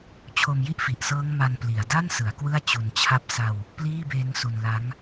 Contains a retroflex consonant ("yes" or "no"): no